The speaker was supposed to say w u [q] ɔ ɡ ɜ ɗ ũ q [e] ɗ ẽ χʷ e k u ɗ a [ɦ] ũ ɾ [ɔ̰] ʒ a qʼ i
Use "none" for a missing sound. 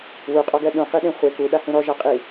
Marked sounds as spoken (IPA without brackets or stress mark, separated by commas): qʼ, i, h, ɔ